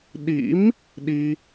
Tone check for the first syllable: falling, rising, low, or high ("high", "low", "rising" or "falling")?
rising